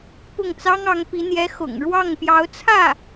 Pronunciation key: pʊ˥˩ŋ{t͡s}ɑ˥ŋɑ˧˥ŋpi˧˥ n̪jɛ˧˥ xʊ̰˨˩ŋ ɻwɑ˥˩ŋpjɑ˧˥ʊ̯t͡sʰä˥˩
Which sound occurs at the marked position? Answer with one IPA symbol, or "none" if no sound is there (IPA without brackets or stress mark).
t͡s